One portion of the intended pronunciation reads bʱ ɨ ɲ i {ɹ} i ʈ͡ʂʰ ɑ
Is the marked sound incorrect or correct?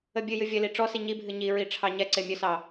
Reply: correct